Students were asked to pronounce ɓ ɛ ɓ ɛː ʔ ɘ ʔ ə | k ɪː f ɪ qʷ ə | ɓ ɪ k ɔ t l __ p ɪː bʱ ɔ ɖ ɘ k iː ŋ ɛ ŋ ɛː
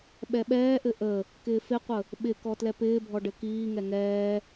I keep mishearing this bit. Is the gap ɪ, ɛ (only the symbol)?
ɛ